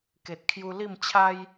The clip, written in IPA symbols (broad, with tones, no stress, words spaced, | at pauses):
ke˨t̚kʰju˧ li˥˧mt͡ɕʰa˦j